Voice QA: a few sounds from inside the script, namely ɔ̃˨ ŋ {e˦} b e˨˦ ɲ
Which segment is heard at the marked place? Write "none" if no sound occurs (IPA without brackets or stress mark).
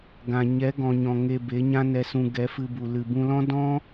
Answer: e˧